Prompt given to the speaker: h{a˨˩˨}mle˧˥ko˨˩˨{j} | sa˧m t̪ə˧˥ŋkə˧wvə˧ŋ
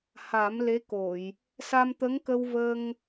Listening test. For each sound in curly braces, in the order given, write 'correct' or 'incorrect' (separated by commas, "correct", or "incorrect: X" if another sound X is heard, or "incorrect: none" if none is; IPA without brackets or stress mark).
incorrect: a˨˩˦, correct